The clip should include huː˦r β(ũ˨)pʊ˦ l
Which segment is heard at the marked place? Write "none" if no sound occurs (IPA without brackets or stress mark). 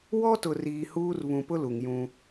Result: ũ˨